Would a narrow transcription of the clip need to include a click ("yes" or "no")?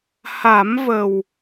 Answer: no